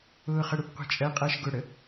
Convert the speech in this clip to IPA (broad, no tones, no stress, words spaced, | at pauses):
ʊːχəɽupqʷi̤ t͡ʃʼɜqʼɜʃ ɡʊɽə